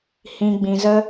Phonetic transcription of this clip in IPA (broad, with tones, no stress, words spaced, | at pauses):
hĩ˦ ɡ͡bĩ˧zə˦